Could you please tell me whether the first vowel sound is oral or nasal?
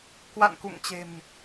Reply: oral